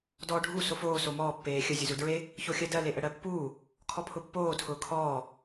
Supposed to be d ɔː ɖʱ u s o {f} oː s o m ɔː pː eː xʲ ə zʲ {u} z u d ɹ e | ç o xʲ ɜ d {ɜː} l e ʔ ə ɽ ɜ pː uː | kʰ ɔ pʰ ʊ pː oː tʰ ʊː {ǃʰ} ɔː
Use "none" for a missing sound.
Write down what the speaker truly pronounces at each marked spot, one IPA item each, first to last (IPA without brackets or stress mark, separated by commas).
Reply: f, u, ɜ, kʰ